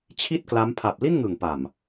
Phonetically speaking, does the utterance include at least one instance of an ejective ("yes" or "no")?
no